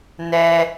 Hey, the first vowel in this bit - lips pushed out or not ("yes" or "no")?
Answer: no